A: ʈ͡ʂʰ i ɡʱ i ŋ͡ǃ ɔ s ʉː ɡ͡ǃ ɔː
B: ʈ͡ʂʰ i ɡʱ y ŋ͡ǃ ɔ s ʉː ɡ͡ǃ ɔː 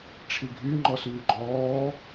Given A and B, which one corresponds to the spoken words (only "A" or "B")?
B